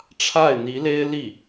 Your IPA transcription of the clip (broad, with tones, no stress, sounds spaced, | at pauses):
ʈ͡ʂʰ a˥˩ ɪ̯ n̪ i˧˥ l e˥ ɪ̯ l i˥˩